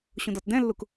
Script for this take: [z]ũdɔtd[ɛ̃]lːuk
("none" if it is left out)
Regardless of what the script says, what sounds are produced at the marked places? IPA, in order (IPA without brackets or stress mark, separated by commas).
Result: ɕ, ɛ̃